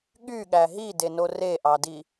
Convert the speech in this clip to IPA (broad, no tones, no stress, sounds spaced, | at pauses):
ɠ y ɠ æ ɦ i d e n o r e ʔ ɑ d i